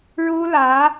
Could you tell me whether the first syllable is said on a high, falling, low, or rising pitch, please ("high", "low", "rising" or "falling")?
high